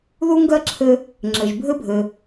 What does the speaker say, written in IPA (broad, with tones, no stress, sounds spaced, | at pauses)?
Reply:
ð u˥ ŋ ɡ ɜ˥ ǁʰ ɘ˧ | ŋ͡ǁ ɘ˩ ʒ bʱ ɘ˥ bʱ ɘ˩